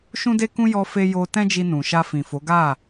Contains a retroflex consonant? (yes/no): no